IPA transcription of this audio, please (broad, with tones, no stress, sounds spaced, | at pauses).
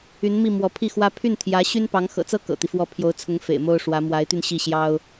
y˧˥ n m i˥˩ m w ɔ˧˥ pʰ i˥˩ x w ä˥ pʰ y˥˩ n t̪ʰ j ä˧˥ ɕ y˥ n p ɑ˧˥ ŋ x ɤ̰˨˩ t͡s ɤ˥ k ɤ̰˨˩ t̪ i˦ f w ɔ˥˩ pʰ j o˧˥ ʊ̯ t͡sʰ ʊ˧˥ ŋ f ḛ˨˩ ɪ̯ m o˥ ʊ̯ ʂ w ä˧˥ m w a˧˥ ɪ̯ t̪ y˧ n ɕ i˥˩ ɕ j ɑ˥ ʊ̯